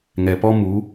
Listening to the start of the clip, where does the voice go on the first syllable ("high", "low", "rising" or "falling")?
low